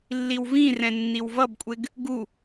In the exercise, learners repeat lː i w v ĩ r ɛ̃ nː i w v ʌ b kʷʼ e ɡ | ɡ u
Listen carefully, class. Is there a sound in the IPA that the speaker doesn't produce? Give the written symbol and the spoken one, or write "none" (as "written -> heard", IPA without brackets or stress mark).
none